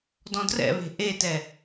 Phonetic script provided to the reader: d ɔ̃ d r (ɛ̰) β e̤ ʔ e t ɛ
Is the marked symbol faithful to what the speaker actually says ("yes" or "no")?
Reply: yes